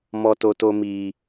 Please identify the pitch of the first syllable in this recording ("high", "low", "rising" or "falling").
high